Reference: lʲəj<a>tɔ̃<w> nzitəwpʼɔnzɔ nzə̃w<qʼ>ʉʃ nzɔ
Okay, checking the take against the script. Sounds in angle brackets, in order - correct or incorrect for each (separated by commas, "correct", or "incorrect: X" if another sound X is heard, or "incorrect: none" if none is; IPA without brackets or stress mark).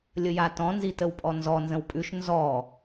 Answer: correct, incorrect: none, incorrect: pʼ